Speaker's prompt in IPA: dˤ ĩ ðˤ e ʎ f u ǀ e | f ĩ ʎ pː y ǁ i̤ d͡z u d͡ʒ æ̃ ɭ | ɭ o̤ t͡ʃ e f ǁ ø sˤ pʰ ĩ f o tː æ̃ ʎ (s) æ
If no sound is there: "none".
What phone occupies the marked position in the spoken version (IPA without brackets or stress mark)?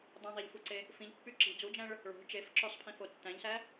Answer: s